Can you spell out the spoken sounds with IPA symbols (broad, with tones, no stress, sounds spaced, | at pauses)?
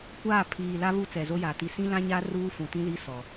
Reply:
kʷ aː˦˨ pʰ iː˨ l a˦ β u˦ t͡s ɛ˨ z o˦ j a˨ t i˨ s ĩ˦ l ã˦ ɲ a˦ r uː˦ f ũ˨ t ĩ˦ l i˦ s ɔ˨